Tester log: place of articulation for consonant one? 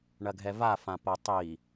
retroflex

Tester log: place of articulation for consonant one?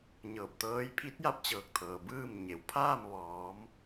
palatal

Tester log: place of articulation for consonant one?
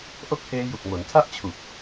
glottal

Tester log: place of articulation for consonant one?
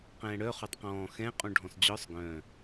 uvular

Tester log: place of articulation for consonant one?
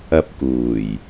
labial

